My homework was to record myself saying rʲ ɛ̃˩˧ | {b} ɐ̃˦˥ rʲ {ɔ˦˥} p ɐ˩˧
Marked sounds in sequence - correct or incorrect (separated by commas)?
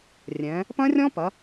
incorrect, incorrect